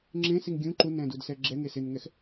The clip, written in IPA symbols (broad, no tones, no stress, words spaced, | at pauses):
ŋ͡ǁẽsiŋ ɡʲũ ǃunɛ̃dudsɛ ɡ͡ǁɛŋe sɪnŋɛx